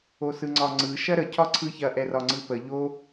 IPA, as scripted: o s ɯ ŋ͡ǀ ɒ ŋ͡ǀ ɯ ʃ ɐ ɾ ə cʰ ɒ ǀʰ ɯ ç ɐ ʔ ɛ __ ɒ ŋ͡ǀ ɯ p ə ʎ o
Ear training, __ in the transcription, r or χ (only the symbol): r